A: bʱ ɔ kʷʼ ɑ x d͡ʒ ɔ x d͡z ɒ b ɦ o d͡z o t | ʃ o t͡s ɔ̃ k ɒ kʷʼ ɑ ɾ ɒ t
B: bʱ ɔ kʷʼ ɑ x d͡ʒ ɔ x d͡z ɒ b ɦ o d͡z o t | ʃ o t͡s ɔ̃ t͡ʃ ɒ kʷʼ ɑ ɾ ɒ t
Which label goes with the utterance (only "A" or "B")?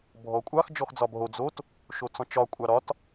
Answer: B